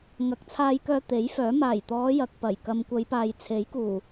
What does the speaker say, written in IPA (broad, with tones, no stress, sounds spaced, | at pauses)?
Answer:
ŋ ɐ˨˥ k̚ t͡sʰ aː˧ j k œː˧ t̪ e˨˥ j f œː˨˥ m aː˨˩ j t̪ ɔː˨˧ j ɐ˨ k̚ p ɐ˨˩ j k ɐ˨ m kʷ ɐ˨˧ j p aː˨ j t͡sʰ e˨˥ j k uː˨˩